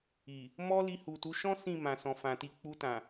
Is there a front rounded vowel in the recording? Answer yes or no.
no